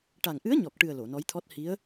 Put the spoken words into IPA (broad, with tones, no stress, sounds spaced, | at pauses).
ʈ a˨˩ ŋ ʔ ɨ˧˥ ə̯ ɲ ɔ˨˩ k̚ ʈ ɨ˨˩ ə̯ l o˨˩˨ n ɔ˧˥ j t̪ʰ ɔ˦˥ t̚ h i˧˥ ə̯